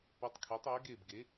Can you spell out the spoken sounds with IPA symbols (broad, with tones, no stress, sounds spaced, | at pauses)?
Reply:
p ɯ˨˥ tˤ kʰ e˨˥ tˤ ø˨˥ ɡ e˦˨ b ɡ e˨˥